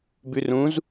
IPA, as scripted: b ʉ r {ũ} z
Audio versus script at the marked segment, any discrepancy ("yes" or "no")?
no